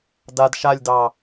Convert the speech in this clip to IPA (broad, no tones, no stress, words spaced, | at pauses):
dad ʃalʲdɑ